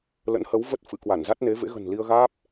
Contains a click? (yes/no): no